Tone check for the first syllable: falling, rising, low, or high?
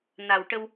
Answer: low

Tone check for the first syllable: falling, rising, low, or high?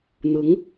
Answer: rising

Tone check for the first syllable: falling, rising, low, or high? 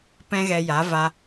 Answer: high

